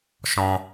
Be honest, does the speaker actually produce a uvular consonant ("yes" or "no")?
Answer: no